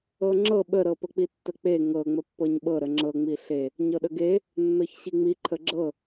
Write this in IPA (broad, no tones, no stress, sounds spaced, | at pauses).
ɤ ŋ͡ǁ ɤ ɓ ə ɾ ɤ p ə k͡p i tː ə k͡p e ŋ ɤ ŋ͡m ə pː ɤ ɲ ɓ ɤ ɾ ə ŋ͡ǁ ɤ ŋ͡m i ɬ e | ɲ ɤ ɗ ə ɡ e | nː ɤ ç ɕ i ŋ͡m i ǃʰ ə ɡ͡ǁ ɤ